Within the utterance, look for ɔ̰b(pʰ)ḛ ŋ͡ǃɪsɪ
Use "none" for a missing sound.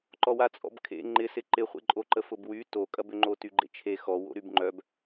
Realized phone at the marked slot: kʰ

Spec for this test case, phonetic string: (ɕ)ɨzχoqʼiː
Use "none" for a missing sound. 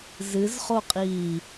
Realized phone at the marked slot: z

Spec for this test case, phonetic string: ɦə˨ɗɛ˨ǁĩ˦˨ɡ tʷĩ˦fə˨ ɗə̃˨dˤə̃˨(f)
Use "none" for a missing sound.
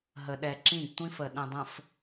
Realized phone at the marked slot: f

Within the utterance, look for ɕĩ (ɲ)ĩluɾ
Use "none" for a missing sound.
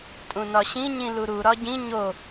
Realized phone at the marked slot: ɲ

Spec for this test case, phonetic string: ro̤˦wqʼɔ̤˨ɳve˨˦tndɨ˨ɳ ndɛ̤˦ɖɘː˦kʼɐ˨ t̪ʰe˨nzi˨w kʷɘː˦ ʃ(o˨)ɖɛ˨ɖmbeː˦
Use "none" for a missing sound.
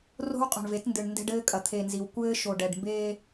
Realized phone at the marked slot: o˨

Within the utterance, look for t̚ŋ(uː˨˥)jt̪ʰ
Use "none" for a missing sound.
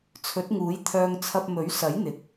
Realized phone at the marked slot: uː˨˥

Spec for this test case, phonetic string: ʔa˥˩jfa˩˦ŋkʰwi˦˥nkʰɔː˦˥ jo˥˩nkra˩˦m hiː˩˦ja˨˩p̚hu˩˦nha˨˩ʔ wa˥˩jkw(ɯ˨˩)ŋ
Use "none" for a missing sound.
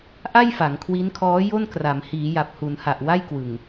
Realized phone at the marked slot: ɯ˨˩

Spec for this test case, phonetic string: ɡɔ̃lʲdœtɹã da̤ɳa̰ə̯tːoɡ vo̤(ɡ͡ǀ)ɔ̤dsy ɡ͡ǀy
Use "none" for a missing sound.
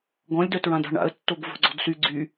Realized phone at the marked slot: ɡ͡ǀ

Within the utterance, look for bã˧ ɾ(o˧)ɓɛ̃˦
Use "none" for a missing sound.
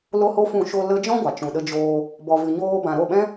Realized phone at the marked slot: o˦˨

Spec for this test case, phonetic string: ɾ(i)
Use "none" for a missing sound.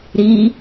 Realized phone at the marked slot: i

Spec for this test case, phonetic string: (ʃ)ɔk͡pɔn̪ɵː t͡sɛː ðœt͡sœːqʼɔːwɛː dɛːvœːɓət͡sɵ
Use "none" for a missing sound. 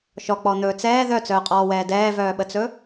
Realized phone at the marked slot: ʃ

